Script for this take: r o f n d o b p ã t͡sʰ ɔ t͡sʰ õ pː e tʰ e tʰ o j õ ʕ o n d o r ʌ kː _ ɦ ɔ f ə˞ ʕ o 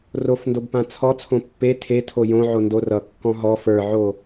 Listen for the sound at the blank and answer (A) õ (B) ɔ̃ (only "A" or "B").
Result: B